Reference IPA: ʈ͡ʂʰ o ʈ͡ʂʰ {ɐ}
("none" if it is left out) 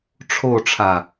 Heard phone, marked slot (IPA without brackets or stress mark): a